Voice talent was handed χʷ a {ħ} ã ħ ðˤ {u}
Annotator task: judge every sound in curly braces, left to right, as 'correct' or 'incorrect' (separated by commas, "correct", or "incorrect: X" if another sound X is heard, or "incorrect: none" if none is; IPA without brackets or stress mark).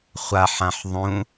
correct, incorrect: ũ